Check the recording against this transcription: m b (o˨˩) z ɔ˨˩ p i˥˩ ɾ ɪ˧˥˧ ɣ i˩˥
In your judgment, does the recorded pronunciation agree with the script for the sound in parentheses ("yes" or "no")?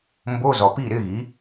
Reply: no